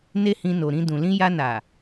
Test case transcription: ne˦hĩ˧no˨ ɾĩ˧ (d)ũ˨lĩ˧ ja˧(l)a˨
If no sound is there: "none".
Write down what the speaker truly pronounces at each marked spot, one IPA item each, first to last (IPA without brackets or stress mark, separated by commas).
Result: d, n